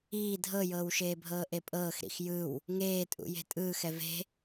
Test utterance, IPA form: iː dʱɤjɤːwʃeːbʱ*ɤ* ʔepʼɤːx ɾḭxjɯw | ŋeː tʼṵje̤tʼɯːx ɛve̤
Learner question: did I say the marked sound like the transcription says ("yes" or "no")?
no